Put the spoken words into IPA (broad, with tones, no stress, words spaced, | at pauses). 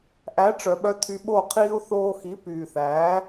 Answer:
ʔæ˨˦ʈ͡ʂœ˨ɓœ˧ tʰy˧ɓo˦˨ qʰiː˧u̯θoː˧xi˨˦ pyː˨θæː˨˦